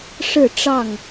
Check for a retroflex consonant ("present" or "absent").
present